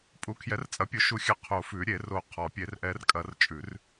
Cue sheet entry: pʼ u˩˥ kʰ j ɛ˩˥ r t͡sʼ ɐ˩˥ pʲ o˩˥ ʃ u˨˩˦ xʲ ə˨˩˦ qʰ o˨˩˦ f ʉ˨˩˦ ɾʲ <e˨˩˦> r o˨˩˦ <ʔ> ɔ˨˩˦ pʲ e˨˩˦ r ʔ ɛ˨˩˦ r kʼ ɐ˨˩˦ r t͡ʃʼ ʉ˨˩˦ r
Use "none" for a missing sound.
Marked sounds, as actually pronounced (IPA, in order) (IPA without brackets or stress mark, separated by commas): e˨˩˦, qʰ